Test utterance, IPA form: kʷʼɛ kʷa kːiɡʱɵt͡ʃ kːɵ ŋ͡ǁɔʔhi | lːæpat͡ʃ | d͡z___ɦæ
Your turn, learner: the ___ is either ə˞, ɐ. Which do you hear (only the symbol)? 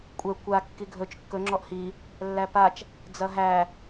ɐ